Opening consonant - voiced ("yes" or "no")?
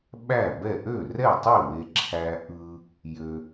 yes